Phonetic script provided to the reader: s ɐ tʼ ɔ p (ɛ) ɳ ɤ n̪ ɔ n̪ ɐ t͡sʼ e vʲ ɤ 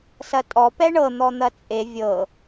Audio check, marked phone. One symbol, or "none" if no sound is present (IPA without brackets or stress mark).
ɛ